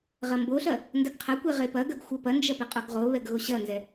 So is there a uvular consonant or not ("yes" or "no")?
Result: yes